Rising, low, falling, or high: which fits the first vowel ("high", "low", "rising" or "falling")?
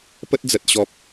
high